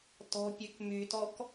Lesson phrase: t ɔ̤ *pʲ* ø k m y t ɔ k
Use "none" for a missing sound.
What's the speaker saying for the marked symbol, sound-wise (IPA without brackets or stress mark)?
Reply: pʲ